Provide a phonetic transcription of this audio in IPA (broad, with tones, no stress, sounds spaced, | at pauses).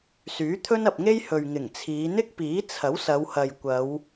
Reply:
s yː˨˥ t̪ʰ ɵ˥ n ɐ˨ p̚ ŋ e˥ j h ɵ˨ ɥ ŋ ɪ˨˩ ŋ t͡sʰ iː˨˧ n̪ ɪ˥ k̚ p iː˨˥ t͡sʰ ɐ˨˥ w s ɐ˨˧ w h ɐ˨ j kʷ ɐ˨˧ w